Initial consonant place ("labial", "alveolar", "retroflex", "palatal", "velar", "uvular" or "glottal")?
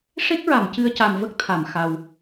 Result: retroflex